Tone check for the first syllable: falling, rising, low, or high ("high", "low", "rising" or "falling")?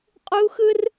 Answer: high